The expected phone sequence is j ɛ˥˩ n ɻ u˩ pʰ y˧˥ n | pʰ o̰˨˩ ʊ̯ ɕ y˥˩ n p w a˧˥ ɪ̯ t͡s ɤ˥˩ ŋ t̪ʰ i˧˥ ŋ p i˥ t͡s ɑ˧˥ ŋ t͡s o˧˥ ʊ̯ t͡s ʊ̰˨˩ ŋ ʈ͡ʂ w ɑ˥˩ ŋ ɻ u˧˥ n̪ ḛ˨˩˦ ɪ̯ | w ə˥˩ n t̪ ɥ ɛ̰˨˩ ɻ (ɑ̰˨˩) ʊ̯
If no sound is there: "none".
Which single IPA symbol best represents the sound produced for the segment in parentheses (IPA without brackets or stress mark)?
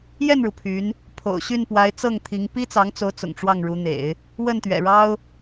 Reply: ɑ˥